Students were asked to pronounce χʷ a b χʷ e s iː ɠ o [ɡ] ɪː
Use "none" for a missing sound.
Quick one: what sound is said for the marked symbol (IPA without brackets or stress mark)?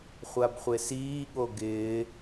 ɡ